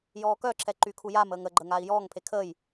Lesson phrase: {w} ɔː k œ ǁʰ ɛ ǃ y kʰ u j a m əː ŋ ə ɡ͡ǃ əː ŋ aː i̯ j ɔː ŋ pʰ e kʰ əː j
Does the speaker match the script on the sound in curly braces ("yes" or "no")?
no